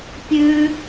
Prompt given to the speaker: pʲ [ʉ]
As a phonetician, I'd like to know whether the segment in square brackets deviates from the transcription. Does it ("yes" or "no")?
no